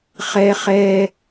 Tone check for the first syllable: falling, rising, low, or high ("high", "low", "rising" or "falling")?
high